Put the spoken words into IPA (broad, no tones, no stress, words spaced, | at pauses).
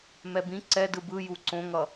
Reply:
mɛbĩ ǀɛ dɯbɯ juǀõŋʌ